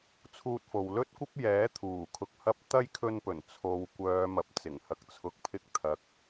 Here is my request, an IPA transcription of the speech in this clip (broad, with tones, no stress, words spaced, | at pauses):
t͡sʰuː˧t̚fo˨w lɵ˥t̚kʷɐ˥p̚ jɛː˨˥t̪ʰuː˨˩ kʰʊ˧k̚hɐ˥p̚ t̪ɐ˥jkʰɵ˧npɵ˨˩n t͡sʰo˨˧w kʷœː˨˧mɐ˨p̚ t͡sɪ˨˩ŋhɐ˨k̚t͡sʰʊ˨˥k̚pʰɪ˧k̚ t̪ʰɐ˨˥k̚